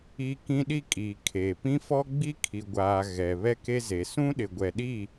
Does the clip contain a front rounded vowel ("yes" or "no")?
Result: no